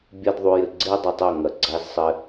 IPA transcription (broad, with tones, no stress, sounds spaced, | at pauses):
bʲ ɛ˦ d ðˤ u˧ j ɘ˨ ɡ͡ǀ e˦ dˤ ɐ˧ tˤ ɐ˦˨ ŋ ɐ˨ ɡ͡ǀ a˧ z sˤ ɘ˧